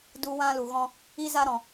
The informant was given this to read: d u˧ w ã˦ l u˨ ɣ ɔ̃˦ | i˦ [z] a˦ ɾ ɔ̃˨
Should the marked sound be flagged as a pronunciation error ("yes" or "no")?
no